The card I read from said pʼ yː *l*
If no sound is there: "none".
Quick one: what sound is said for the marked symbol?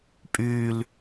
l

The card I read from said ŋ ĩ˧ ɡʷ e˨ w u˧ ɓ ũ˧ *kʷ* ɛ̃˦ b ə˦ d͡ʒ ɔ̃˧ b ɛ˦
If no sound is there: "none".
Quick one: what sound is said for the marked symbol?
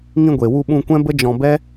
kʷ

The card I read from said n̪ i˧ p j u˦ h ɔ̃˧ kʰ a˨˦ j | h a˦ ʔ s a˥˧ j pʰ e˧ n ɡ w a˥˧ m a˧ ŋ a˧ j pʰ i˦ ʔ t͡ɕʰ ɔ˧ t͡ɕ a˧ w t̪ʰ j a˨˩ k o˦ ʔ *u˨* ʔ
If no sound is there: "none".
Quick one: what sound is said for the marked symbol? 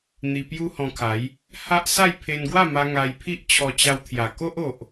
o˨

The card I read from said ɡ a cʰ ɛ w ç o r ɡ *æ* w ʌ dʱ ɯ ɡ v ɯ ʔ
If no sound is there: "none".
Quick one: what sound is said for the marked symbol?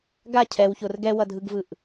ɛ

